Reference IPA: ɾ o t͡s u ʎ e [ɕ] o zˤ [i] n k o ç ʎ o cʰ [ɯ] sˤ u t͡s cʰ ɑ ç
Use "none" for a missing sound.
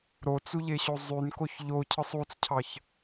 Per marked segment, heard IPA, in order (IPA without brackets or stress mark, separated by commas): ɕ, y, ɯ